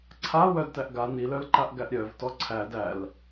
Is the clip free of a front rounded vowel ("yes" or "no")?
no